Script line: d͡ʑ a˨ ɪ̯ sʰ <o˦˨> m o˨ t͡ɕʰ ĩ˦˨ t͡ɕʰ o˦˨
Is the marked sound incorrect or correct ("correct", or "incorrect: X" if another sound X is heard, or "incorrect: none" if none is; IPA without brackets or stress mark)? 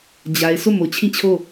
correct